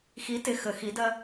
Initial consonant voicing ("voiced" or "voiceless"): voiceless